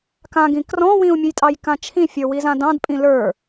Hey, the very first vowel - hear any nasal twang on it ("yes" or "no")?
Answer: yes